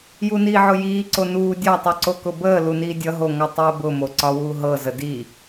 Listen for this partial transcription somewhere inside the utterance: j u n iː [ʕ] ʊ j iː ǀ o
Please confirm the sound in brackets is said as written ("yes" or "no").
yes